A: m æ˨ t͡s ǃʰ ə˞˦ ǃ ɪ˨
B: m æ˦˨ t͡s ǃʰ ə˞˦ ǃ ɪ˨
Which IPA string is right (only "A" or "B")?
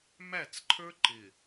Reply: B